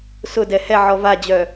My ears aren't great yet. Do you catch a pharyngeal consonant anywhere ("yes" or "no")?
yes